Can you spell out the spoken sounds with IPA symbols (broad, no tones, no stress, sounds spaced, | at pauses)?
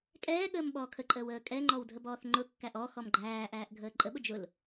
kʼ ɛː ɠ əː m ɓ ɔː kʰ ə ǃʼ əː w əː kʼ ɛ ŋ͡ǃ ɔ w dʱ ə b ɔː θ ŋ͡ǃ ʊ kː æ ʔ ɔ x ɔ m ɡ͡ǃ æː ʔ æː ʔ ɡʱ əː ǃʼ ə ɓ ʊ d͡ʒ ʊ l